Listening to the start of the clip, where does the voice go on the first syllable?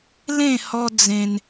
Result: falling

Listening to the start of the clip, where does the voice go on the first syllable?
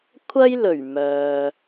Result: high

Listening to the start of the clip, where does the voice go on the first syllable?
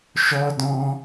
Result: high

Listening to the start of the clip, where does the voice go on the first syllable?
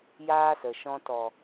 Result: high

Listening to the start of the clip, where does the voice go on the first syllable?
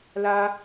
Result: high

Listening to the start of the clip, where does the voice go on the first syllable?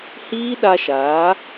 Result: high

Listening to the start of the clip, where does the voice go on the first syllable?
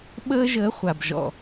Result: high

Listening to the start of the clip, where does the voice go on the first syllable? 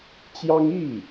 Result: high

